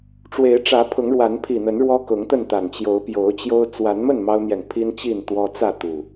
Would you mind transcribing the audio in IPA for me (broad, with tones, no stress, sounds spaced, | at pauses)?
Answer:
ʈ͡ʂ w e˨˦ ɪ̯ ʈ͡ʂ ä˨˦ pʰ ʊ˨˦ ŋ ɻ w a˨˦ n pʰ i˨˩ n̪ ə˨˦ n ɻ w ɔ˦ k ʊ˨˦ ŋ t̪ ə˥˨ n t̪ a˨˩ n t͡ɕ j o˨˦ ʊ̯ p j o˨˦ ʊ̯ t͡ɕ j o˦ ʊ̯ t͡s w a˨˦ n m ə˥˨ n m ɑ˦ ʊ̯ n̪ j ɛ˨ n pʰ i˦ n t͡ɕ i˥˨ n t̪ w ɔ˦ t͡s ä˥˨ t̪ u˨˩